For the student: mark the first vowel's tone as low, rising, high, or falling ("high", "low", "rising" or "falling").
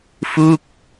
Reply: falling